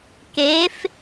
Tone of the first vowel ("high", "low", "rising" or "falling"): rising